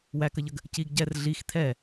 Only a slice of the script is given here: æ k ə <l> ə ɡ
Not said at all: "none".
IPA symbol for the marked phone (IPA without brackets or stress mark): ʎ